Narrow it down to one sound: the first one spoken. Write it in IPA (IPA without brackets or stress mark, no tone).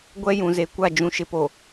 ɡʷ